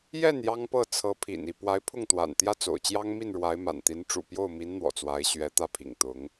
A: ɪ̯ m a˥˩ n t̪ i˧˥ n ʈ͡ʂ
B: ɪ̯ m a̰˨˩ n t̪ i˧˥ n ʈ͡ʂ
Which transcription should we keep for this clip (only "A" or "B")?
B